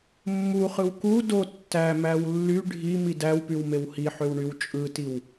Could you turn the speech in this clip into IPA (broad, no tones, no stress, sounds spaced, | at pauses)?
mː u χ ɯ w k u d o tː æ m æ w lː y ɖʱ i m i d æ w p y w m e w h i ħ ø w ɳ y w t͡ʃʼ ɯ t i w